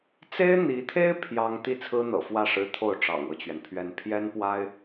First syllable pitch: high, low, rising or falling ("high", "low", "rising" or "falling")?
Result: high